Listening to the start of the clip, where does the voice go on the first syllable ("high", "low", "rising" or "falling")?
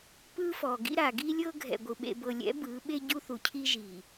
high